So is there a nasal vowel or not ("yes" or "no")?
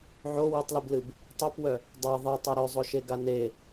no